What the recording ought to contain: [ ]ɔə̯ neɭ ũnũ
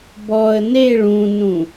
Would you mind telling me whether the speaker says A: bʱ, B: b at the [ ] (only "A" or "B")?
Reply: B